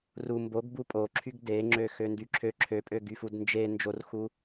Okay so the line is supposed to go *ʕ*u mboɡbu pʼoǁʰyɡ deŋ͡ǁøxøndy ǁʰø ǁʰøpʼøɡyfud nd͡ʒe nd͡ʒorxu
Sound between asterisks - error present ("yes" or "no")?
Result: yes